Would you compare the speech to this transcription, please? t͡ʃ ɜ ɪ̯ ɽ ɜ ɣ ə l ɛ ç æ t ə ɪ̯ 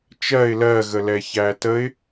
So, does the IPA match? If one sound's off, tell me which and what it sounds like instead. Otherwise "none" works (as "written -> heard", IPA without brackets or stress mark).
ɽ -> l